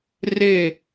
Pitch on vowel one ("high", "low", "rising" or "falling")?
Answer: falling